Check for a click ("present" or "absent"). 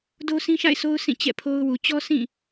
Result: absent